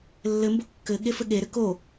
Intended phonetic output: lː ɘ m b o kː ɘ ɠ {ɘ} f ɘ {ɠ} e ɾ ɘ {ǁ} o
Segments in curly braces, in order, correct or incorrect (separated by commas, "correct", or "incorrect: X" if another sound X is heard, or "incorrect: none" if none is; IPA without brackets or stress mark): incorrect: e, correct, incorrect: k